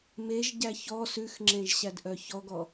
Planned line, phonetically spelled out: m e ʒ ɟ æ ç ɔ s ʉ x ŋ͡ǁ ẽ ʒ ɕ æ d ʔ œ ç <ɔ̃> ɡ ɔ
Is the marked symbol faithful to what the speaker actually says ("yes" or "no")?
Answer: no